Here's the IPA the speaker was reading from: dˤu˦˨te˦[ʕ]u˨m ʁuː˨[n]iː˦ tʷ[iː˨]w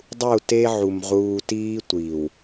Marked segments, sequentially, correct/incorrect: correct, incorrect, correct

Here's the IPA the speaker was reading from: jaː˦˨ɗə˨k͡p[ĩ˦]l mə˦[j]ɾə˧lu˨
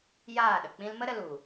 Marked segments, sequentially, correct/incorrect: correct, incorrect

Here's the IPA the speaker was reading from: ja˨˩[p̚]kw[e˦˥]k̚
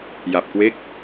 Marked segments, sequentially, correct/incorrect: correct, correct

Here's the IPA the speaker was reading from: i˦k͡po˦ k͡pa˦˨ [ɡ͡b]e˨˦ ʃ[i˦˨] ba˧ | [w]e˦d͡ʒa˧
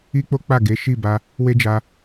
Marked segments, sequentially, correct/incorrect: incorrect, correct, correct

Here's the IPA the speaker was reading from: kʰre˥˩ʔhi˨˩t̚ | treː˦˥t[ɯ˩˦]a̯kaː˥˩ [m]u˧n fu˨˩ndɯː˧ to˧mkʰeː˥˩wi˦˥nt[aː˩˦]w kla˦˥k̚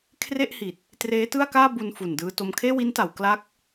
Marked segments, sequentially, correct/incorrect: incorrect, incorrect, incorrect

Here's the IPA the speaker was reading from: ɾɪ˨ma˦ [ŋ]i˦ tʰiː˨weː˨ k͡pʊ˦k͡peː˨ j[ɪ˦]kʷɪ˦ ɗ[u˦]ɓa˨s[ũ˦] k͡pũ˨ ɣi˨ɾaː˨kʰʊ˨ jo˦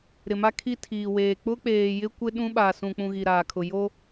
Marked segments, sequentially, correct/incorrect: incorrect, correct, incorrect, incorrect

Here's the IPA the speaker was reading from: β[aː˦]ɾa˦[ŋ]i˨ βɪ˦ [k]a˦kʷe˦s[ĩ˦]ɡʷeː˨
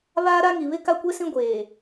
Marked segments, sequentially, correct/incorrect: correct, correct, correct, correct

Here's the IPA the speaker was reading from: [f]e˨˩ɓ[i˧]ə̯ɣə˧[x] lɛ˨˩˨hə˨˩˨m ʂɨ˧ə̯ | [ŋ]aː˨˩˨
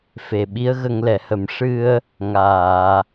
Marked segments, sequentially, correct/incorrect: correct, incorrect, incorrect, correct

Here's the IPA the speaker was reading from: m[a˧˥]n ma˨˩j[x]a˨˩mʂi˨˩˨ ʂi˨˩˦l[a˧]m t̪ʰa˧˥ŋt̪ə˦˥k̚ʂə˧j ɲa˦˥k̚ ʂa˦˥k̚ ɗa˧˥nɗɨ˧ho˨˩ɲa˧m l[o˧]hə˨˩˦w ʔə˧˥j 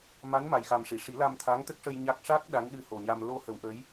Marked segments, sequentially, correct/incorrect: correct, correct, correct, correct

